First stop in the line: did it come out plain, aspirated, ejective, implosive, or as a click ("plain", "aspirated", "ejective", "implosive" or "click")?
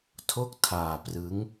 aspirated